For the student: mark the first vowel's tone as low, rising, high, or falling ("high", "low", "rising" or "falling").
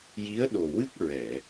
rising